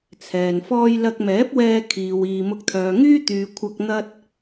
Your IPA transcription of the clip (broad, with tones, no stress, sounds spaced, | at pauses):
t͡sʰ ɛː˨ n f ɔː˥ j l ɐ˧ k̚ m ɛː˨˥ p̚ w ɛː˧ kʰ iː˨ w iː˨ m ʊ˧ k̚ t̪ʰ œː˨ ŋ yː˥ t̪ yː˨ kʷʰ ɐ˧ k̚ n̪ ɐ˥ t̚